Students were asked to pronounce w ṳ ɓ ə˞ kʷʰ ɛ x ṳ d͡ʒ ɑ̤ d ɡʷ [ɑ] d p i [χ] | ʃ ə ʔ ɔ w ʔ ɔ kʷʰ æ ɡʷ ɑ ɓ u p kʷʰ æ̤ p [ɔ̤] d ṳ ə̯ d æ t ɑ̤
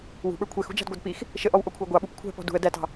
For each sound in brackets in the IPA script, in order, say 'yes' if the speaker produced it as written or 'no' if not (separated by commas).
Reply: yes, no, yes